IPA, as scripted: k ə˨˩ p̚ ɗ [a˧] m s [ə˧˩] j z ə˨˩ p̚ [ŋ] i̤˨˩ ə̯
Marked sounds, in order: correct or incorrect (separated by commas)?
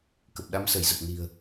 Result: incorrect, correct, incorrect